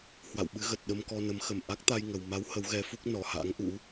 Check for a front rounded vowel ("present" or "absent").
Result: absent